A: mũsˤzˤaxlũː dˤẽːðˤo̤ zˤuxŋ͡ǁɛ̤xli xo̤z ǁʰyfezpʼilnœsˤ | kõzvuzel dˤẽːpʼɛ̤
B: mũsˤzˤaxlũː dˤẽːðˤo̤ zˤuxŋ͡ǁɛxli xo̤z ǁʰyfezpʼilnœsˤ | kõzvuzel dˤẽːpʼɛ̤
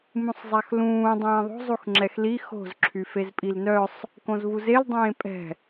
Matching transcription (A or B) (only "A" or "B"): B